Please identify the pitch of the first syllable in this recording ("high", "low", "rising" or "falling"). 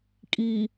low